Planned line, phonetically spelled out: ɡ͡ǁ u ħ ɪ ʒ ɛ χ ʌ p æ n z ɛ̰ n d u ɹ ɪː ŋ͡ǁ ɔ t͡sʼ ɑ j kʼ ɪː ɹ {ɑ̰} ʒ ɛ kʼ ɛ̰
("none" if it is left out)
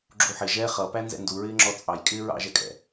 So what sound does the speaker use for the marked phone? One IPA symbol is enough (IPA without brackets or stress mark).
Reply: ɑ̰